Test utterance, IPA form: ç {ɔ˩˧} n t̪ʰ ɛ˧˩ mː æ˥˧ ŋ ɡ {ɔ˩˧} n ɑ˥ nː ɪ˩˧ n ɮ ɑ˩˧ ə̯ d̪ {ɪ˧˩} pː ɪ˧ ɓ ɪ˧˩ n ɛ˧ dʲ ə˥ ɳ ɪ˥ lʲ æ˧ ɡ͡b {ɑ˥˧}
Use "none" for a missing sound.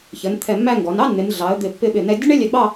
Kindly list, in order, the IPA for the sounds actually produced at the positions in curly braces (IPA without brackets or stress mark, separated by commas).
ə˩˧, ɔ˩˧, ɪ˧˩, ɑ˥˧